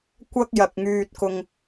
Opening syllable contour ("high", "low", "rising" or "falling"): high